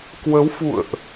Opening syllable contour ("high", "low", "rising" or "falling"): rising